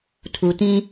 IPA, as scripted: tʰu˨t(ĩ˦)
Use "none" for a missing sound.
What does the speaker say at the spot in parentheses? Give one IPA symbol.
ĩ˦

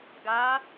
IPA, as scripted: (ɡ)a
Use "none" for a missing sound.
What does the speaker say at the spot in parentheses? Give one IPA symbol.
ɡ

